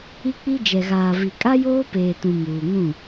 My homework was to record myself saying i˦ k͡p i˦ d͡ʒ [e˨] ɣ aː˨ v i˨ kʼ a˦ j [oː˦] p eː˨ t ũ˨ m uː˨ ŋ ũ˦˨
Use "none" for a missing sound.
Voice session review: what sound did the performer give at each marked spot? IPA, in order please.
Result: ɛ˨, oː˦

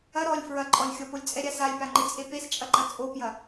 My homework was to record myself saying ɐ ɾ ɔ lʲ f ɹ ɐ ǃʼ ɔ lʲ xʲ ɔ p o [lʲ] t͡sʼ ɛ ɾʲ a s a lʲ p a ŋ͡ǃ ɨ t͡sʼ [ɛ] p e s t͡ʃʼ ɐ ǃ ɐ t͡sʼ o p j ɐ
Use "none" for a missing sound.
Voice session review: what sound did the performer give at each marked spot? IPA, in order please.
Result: lʲ, e

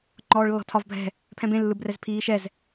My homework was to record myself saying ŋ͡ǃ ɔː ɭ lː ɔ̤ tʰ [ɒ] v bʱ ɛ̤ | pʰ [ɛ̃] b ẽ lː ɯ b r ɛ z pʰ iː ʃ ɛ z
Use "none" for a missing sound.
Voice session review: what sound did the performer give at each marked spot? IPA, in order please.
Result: ɒ, ɛ̃

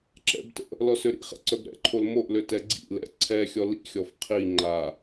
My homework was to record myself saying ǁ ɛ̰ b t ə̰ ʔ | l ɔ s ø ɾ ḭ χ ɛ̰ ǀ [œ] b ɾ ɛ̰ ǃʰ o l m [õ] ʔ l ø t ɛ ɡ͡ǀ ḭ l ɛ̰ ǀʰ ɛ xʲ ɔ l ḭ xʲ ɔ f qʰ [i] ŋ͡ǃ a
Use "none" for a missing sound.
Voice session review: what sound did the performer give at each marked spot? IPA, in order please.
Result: œ, o, i

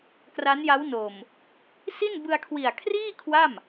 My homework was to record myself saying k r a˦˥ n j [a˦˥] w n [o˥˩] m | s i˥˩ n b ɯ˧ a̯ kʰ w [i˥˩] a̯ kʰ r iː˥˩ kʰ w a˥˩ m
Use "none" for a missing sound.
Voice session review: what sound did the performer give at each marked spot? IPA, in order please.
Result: a˦˥, o˨˩, i˨˩

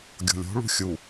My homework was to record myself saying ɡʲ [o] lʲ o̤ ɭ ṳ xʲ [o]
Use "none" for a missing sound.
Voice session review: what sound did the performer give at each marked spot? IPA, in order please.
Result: o̤, u

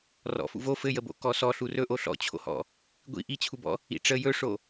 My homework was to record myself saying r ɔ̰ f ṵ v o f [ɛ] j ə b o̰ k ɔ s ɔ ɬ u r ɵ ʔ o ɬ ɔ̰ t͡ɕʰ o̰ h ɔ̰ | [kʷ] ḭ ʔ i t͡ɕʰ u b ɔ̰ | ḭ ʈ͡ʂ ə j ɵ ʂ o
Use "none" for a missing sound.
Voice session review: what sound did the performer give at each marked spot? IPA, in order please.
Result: ɘ, ɡʷ

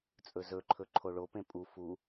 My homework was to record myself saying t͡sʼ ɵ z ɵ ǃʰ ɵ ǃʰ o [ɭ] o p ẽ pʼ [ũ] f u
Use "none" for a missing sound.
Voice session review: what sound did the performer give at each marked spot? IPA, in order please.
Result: ɭ, u

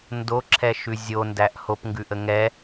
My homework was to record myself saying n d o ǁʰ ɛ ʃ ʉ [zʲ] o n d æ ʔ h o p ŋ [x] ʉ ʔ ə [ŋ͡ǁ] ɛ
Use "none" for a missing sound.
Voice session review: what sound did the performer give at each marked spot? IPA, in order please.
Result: zʲ, ɡ, ŋ

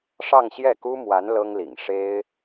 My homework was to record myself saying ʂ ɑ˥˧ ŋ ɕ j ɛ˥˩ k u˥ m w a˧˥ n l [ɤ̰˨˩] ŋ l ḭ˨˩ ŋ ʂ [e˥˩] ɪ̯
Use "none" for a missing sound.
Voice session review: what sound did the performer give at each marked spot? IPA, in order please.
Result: ɤ˥, e˥

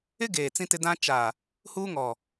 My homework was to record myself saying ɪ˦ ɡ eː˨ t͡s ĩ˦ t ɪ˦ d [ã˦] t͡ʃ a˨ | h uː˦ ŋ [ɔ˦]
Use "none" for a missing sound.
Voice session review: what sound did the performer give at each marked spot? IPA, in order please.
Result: ã˦, ɔ˨

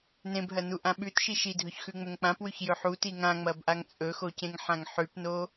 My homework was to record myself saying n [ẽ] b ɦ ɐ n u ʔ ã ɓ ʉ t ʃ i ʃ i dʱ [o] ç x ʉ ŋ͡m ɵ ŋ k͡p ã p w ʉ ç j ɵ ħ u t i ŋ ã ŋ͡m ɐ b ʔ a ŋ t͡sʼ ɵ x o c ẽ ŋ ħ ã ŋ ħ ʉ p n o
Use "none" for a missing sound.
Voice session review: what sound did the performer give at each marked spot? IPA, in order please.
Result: ẽ, ɵ

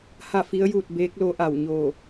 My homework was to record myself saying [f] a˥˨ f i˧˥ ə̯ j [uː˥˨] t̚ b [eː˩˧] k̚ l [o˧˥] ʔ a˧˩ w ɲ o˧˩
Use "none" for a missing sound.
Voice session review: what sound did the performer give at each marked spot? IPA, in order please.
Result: h, uː˥˨, eː˧˥, o˧˥

